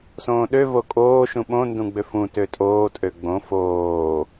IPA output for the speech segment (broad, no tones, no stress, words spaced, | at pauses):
sõːɗø vokʼoː ʃũɓõ ndũɡ͡bøfũ tøtʼoː tʼøɡ͡bõ foː